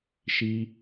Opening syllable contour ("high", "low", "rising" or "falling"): low